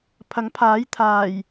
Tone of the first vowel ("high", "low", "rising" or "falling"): rising